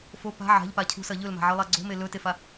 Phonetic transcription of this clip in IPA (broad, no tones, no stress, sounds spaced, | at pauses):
f o p a̤ ʕ a̤ ʎ p a cʰ ṳ s ɐ ʎ ɵ l m a̤ ʕ ɨ lˠ a ɡ͡ǀ o̤ m e l ɵ t e f a